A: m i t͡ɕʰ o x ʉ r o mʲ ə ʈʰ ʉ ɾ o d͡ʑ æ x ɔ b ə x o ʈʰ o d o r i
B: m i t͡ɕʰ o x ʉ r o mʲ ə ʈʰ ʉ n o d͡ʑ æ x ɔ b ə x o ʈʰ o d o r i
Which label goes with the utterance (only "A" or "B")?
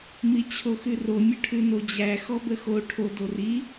B